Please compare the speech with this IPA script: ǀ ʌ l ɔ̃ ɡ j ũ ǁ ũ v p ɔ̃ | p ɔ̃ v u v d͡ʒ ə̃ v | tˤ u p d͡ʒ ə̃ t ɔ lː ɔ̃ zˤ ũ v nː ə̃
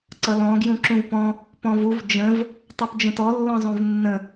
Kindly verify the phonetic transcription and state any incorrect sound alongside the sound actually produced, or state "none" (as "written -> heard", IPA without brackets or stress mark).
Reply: none